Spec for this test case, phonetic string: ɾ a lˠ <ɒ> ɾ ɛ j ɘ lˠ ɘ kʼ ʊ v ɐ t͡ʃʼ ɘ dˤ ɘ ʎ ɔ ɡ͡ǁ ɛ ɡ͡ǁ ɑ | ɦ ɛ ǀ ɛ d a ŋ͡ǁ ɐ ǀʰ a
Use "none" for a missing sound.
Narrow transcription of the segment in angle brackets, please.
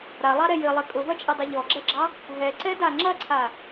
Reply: ɑ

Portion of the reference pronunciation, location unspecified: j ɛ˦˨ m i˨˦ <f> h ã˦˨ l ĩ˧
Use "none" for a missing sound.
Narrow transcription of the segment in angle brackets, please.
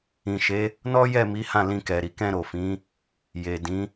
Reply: none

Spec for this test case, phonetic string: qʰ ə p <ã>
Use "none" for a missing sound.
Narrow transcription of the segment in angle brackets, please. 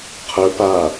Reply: a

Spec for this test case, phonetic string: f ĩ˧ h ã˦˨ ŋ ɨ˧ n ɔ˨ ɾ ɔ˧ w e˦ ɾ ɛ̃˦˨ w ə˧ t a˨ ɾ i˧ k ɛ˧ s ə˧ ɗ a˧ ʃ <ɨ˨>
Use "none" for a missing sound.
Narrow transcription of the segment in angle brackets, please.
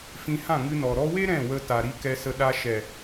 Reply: ɛ˨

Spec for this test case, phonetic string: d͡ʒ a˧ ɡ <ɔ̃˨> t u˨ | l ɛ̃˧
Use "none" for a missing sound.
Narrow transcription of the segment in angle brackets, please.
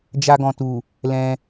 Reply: ɔ̃˨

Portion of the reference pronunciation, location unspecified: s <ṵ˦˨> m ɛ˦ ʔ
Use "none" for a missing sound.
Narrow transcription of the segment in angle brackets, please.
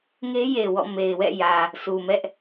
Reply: u˨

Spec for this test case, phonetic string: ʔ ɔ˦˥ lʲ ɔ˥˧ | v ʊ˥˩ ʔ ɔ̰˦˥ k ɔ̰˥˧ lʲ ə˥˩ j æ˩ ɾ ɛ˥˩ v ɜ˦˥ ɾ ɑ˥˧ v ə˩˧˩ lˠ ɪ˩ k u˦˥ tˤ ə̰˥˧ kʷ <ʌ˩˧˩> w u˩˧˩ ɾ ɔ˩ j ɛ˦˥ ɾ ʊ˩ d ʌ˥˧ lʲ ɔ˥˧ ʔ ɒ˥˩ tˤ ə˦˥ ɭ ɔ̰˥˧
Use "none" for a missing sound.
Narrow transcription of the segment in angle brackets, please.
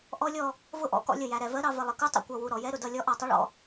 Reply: ʌ˩˧˩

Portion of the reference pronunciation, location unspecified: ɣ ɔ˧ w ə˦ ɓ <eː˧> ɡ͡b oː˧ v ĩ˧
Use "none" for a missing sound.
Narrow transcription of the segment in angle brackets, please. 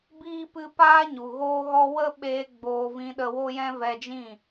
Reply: eː˧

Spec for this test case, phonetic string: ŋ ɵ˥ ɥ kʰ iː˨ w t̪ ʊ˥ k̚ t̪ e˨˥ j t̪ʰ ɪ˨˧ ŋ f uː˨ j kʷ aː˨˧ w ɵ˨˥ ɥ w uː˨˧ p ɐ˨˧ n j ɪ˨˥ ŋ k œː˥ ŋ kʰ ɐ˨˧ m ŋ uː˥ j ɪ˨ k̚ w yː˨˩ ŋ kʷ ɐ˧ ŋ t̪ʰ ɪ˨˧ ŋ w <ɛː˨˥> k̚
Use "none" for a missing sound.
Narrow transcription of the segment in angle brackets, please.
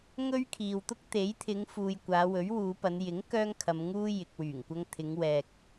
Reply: ɛː˨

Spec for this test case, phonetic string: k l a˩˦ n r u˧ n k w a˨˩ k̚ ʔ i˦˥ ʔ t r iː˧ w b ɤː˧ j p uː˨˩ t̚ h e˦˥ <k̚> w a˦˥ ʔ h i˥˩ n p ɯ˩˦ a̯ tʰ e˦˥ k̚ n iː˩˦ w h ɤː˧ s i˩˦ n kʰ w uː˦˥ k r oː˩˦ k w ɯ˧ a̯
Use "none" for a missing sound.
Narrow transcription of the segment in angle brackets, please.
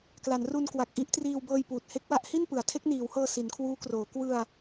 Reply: k̚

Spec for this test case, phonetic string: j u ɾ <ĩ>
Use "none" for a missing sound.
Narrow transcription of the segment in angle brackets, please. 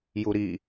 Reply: i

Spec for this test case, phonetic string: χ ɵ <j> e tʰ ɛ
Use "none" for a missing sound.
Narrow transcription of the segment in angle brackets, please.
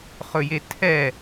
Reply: j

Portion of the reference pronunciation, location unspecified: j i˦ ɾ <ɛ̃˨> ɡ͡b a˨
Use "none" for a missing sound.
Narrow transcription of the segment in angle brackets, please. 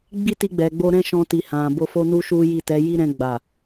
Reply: ɛ̃˧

